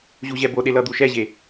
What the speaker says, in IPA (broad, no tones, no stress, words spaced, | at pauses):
ʑuʑɛboɗe lʌd̪uʃɛʑe